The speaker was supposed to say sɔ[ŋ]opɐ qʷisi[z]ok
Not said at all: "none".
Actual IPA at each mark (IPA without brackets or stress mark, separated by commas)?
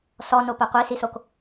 n, s